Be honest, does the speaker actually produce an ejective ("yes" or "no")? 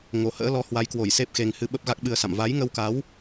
no